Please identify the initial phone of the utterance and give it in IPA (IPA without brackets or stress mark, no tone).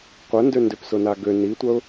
qʷ